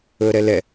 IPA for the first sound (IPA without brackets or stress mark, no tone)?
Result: ɵ